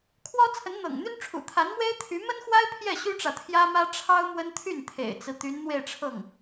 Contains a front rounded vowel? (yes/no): yes